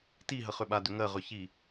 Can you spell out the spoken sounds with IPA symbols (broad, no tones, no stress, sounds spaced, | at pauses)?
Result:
t i ɦ ə χ ʏ ɓ a d ʏ ŋ ɜ ʁ ʏ ç i